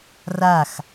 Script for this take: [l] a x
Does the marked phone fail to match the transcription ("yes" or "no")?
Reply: yes